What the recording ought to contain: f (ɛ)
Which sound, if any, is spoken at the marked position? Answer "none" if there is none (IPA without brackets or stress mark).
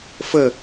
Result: ɘ